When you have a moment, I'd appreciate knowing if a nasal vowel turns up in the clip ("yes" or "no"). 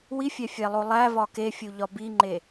no